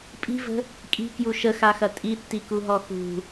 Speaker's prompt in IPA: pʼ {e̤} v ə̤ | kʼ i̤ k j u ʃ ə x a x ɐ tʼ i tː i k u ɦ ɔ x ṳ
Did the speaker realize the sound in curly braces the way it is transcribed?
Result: no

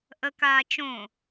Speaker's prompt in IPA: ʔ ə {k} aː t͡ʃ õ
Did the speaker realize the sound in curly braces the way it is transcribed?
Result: yes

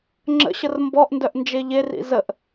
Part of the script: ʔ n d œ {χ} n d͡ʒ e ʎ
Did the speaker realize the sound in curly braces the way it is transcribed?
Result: no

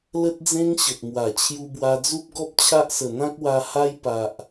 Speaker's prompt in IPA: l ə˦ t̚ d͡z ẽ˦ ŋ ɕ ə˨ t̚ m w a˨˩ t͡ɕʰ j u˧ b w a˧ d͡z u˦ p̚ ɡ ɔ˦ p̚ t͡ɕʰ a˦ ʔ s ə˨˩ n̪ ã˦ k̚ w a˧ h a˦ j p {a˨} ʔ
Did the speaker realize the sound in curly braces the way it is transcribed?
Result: yes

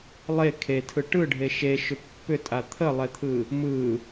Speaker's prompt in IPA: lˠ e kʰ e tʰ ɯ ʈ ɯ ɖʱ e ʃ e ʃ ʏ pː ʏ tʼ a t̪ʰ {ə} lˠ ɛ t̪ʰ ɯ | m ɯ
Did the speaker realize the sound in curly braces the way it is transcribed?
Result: yes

